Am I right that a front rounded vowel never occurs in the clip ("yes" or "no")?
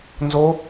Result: yes